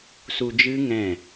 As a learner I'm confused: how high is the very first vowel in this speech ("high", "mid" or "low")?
high